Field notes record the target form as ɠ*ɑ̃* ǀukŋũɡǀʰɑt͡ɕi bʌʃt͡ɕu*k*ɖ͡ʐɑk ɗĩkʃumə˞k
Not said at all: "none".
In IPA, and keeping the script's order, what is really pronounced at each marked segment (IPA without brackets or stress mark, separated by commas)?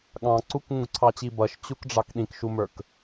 ɑ̃, k